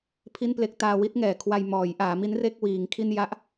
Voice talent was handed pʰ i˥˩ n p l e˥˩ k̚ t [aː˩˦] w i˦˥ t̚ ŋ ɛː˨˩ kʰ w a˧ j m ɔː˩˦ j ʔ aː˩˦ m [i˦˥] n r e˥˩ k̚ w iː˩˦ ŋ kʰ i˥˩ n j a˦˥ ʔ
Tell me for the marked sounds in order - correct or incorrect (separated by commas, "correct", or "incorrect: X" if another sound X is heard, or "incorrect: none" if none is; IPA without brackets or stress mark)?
incorrect: aː˧, correct